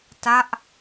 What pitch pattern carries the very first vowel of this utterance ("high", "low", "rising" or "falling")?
falling